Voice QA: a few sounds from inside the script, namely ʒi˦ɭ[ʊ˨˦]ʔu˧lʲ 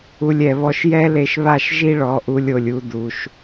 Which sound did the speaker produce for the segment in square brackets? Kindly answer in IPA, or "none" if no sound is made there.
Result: ɔ˨˦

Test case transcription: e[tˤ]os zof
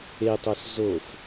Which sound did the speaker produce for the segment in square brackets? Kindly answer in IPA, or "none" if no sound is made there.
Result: tˤ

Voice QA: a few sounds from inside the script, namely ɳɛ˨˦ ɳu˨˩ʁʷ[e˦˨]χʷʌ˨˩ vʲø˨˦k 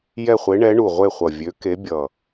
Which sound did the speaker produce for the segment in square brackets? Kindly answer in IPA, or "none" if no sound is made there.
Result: e˦˨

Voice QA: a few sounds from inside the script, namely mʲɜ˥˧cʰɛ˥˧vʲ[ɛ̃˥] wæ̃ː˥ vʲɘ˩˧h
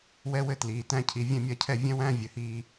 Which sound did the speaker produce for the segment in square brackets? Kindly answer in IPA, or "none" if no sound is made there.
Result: ɛ̃˥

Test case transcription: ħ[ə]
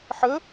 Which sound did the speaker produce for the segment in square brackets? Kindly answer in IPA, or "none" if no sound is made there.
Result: ə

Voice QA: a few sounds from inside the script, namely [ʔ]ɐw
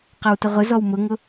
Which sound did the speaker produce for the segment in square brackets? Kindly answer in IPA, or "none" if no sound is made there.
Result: q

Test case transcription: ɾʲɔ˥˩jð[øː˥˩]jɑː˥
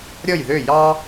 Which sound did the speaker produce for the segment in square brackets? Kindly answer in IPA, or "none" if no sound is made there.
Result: ø˥˩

